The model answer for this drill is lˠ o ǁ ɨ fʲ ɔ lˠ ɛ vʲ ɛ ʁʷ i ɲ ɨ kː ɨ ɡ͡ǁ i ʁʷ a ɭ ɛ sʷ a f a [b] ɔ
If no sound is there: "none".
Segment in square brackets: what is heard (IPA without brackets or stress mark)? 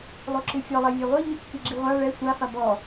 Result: b